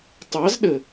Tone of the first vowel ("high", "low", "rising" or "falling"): rising